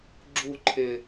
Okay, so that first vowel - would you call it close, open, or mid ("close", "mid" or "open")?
close